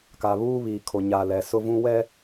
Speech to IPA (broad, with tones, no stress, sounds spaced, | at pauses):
k a˨ β uː˦ β iː˨ kʰ o˨ ɲ a˨ l ɛ˨ s ʊ˦ v ũ˦ w ɛ˦